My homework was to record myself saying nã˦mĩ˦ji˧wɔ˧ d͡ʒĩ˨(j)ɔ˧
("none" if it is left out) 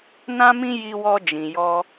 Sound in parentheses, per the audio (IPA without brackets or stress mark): j